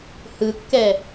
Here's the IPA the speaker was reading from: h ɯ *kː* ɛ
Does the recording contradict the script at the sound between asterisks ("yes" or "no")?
no